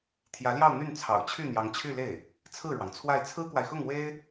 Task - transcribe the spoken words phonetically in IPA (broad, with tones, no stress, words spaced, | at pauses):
t̪ʰjä˧˥ljɑ˥˧ʊ̯ n̪y˥˩n t͡sʰɑ̰˨˩ʊ̯t͡ɕʰy˥˩ n̪jɑ˧˥ŋt͡ɕʰy˥˧le˥˩ɪ̯ | t͡sʰɹ̩˥˩ɻwɑ˩ŋt͡sʰwa˥˩ɪ̯ t͡sʰɹ̩˥kwa˨ɪ̯xʊ˥˩ŋ we˥ɪ̯